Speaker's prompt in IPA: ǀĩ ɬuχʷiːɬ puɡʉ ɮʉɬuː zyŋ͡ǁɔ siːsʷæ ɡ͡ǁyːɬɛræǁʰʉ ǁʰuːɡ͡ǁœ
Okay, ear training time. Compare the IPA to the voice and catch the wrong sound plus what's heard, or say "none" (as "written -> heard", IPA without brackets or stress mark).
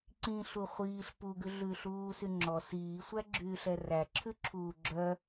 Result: z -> s